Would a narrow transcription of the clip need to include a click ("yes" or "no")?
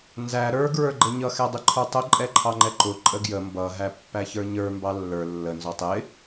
yes